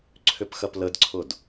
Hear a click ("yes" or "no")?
yes